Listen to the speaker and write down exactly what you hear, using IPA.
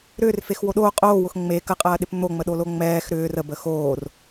ɾ ʏː r f e x w o ɗ oː qʼ oː w ʊ x ŋ͡m e k ə qʼ ɐː ɗ ɪ p n̪ o ŋ͡m ə ɗ o l o ŋ͡m ɛː x ɾ ʏː r ə b ə x oː r

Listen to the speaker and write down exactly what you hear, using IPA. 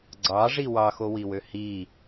ɡ͡ǀ ɑ ʐ i w ɑ x o w i w ø h i

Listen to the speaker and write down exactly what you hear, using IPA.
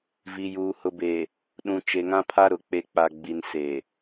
v i˨ j uː˨ h ʊ˨ b e˨ | ɗ ũ˨ t͡ʃ e˨ ŋ ã˦ pʰ a˦ ɾ ʊ˨ k͡p e˨ k͡p a˨ ɡ͡b i˨ n s e˨

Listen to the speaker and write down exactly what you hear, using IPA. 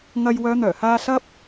ŋ ɐ˧ j w œː˨˧ n̪ œː˨˩ h aː˧ s ɐ˥ p̚

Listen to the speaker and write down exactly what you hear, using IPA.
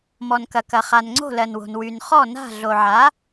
m ɔ˩ n k ɐ˩ k ɐ˩ χ a˩ n ŋ͡ǀ o̤˥˨ l ɜ˩ n w o̤˩ n w y˩ n χ ɔ˥˨ n a̤˥˨ ɮ o˩ ʕ a˩˥

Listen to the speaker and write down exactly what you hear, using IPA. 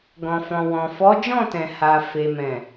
ɡ ɔ̃˨ f ɔ̃˨ w ɔ̃˨ f ɔ˨˦ d͡ʒ ɔ̃˦˨ t ɛ̃˨ h a˨ f e˨ m ɛ̃˨

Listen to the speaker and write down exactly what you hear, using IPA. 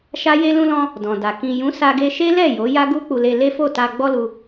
ʃ a˦ j e˧ l ũ˧ l ɔ̃˧ | d ɔ̃˨ d a˨ k ĩ˨ j ũ˨˦ s a˧ ɡ e˧ ʃ e˦ l ɛ˦˨ j o˨˦ j a˦ ɡ u˦ k͡p u˧ l e˧ l e˦ f o˦˨ t a˧ ɡ͡b ɔ˦ l u˧

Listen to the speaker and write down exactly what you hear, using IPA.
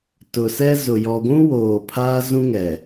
t ʊ˨ s ɛ˦ z ʊ˨ j ɔ˨ ɡʷ ũ˦ w oː˨ pʰ aː˦ z ũ˦ ŋ ɛ˨

